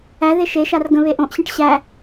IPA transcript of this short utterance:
æ ð e ʃ e ʃ a r ɡ ə̃ β e ʔ õ ʔ ɕ ĩ ʈ ɕ æ

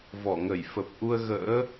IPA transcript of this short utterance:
v ɔ˧˩ ŋ ə˧˩ j f ə˨˩ p̚ ʔ u˧ ə̯ ɣ ə̰ː˧˥

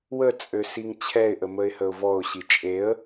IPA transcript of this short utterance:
w ə t͡sʼ ø s i ŋ t͡ɕʰ ɛ ɪ̯ ʔ ə m ə ɪ̯ h ə ʊ̯ v ɔ ʊ̯ ɕ i t͡ʃʼ e ə̯

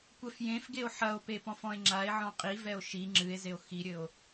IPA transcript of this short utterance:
kʷ ɛ f j ẽ f ɡ e o̯ ħ ɐ o̯ p e p ɔ̃ f ɔ̃ e̯ ŋ͡ǁ a e̯ ʕ ɔ̃ qʼ i v ɛ o̯ ʃ i ŋ͡ǁ ɨ e̯ z e o̯ x i ɾʲ ɘ o̯

